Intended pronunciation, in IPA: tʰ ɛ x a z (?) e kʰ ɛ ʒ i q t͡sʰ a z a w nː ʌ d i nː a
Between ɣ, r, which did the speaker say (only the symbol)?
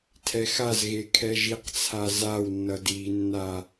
ɣ